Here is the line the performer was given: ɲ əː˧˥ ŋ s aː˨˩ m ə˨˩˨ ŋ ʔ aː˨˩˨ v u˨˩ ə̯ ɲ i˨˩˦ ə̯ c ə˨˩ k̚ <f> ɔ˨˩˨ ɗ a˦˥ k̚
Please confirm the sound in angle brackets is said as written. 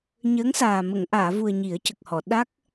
no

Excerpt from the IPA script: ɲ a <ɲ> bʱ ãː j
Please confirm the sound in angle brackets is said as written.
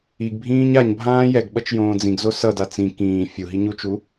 yes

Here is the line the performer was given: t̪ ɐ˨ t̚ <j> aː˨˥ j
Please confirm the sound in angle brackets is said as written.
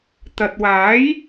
no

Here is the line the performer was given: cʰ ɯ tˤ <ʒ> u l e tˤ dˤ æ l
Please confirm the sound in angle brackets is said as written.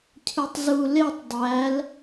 no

